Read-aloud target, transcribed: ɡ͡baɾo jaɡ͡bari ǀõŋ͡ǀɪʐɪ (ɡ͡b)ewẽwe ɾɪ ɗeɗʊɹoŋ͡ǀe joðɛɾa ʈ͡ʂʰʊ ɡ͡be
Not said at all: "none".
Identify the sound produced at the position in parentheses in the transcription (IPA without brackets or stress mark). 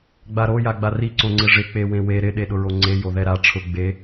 k͡p